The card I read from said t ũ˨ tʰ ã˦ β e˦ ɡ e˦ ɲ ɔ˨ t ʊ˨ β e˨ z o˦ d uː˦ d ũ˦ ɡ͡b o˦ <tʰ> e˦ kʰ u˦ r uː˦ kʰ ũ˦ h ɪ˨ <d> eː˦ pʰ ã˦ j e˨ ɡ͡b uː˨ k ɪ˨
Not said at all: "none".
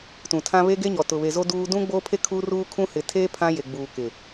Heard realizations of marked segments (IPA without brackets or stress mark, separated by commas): pʰ, tʰ